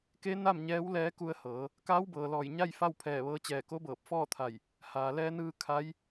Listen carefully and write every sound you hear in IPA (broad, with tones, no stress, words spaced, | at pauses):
ke˧˥ na˥˨mɲɛː˧˥wlɛː˧˥ ku˧ə̯hɤː˩˧ | kaː˧˥wbɤː˩lɔː˧˩j ɲa˥˨j fa˥˨wpʰɛː˧˩ʋɤː˧t͡ɕɛː˧˩ ko˧˥bɤː˧˩p̚fɔː˥˨t̪ʰa˧˩j | haː˩lɛː˧nɯː˧ kʰa˧˥j